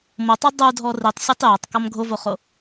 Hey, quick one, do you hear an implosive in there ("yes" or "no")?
no